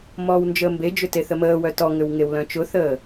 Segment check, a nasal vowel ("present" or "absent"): present